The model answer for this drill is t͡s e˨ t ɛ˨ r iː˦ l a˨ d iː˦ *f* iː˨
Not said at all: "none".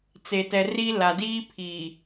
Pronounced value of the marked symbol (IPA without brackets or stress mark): pʰ